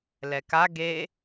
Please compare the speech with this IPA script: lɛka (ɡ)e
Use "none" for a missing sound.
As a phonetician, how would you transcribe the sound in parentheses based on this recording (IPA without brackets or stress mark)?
ɡ